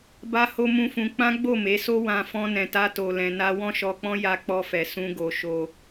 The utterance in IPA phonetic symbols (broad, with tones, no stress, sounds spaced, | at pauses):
b a˦ h o˦ m ũ˦ f ũ˧ k͡p ã˦ ɡ͡b o˦˨ m e˨˦ s o˦ w ã˧ f ɔ̃˦ n ɛ̃˧ t a˦ t o˧ l ɛ̃˧ n a˦ w ɔ̃˦ ʃ ɔ˧ k͡p ɔ̃˦ j a˦ k͡p ɔ˦ f ɛ˧ s ũ˦ ɡ o˧ ʃ o˧